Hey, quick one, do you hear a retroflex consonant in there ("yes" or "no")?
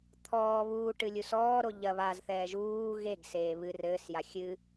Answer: yes